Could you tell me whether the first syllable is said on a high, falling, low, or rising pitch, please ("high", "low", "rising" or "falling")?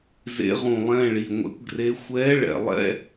rising